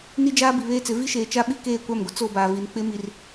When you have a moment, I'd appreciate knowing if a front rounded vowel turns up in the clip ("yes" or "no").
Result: no